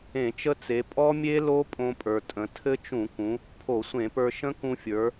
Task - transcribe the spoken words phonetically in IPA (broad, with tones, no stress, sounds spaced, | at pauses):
ẽ˧˩˧ t͡ʃ ə˦˥ t͡s e˩˧ pʼ ɔ˦˥ mʲ e˦˥ l o˦˥ pʼ õ˧ pʼ ə˞˩ tʼ ə̃˩˧ tʰ ɘ˦˥ t͡ʃ ũ˧˩˧ k ũ˩˧ | pʰ o˧˩˧ sʷ ẽ˧˩˧ p ə˞˧ ʃ ə̃˦˥ k ũ˧ fʲ ə˞˩˧